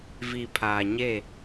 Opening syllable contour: low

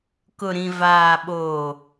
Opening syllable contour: low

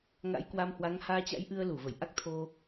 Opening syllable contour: rising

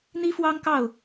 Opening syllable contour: high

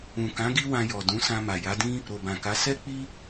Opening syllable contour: low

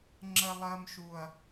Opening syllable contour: low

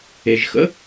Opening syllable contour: low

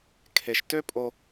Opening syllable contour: low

